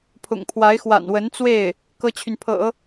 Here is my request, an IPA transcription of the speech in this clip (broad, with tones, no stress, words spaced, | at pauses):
pʰʊ̰˨˩ŋpʰwa˧˥ɪ̯ xwa̰˨˩nwə˧˥n t͡swe˥˩ɪ̯ | kɤ˥t͡ɕʰy˨npʰɤ̰˨˩˦